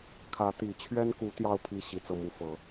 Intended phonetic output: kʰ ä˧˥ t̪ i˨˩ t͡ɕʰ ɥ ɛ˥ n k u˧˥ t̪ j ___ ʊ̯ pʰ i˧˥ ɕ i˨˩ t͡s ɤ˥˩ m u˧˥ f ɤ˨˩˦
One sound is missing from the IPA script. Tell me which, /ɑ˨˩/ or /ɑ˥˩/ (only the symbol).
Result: ɑ˥˩